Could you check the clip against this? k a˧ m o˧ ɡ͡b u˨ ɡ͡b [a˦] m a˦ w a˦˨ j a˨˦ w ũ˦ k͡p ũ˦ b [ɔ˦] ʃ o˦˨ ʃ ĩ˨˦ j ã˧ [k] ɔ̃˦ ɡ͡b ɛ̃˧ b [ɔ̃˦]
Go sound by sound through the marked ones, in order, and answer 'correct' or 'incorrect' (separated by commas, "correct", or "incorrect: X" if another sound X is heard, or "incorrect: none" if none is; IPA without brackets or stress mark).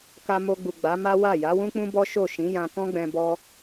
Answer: incorrect: a˨˦, correct, correct, incorrect: ɔ˦